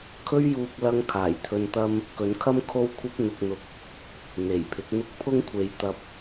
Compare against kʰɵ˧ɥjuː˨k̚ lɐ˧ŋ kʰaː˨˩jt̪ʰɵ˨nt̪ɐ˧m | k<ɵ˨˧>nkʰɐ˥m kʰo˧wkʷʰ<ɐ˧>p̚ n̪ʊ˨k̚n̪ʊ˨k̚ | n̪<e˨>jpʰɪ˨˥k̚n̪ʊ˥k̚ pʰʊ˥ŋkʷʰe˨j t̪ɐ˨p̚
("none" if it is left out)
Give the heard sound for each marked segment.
ɵ˨˧, ɐ˧, e˨˩

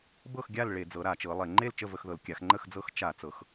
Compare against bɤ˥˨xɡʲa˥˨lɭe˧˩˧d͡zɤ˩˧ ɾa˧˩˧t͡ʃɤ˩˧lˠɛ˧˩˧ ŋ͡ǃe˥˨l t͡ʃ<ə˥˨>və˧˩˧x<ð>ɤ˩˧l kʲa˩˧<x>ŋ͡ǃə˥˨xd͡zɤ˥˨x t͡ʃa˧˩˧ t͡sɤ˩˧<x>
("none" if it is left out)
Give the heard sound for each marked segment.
ə˥˨, ð, x, x

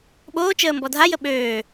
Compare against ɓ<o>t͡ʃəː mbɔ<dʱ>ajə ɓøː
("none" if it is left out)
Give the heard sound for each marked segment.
oː, dʱ

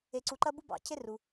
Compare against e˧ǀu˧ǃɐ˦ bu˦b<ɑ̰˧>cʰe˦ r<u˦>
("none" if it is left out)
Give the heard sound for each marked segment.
ɑ̰˧, u˧

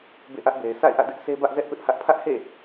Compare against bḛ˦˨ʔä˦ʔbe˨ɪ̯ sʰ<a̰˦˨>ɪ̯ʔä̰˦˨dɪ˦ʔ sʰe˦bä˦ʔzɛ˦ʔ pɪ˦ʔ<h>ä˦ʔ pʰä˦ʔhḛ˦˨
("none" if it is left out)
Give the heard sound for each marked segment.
a̰˦˨, h

